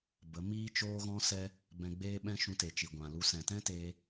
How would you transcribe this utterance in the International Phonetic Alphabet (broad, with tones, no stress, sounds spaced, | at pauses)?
b ə˨˦ m iː˦ t͡ʃ oː˦ ɣ ɔ̃˦ s ɛ˦ | b ɛ̃˧ ɡ͡b eː˦ ɓ ɛ̃˦ ʃ ũ˧ t e˨ t͡ʃ i˨ ɡʷ ã˨ l u˧ s ɛ̃˨ t ɛ̃˦ t eː˧